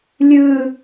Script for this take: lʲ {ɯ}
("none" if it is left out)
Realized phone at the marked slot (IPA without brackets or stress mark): ɯ